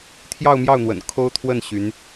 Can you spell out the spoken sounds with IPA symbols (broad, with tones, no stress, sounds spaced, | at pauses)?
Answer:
t̪ʰ j ɑ˥˧ ʊ̯ m j ɑ˥˩ ʊ̯ n̪ w ə̰˨˩ n kʰ o˥ ʊ̯ t̪ʰ w ə˥˩ n ɕ y˧˥ n